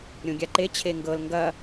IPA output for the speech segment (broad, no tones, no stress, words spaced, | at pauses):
ɾʲõɡʲaǃe t͡ɕʰeŋɡɤl ŋɡɐ